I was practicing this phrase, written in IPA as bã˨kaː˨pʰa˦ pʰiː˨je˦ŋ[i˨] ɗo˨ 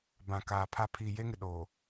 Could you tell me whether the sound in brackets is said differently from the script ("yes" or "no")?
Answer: yes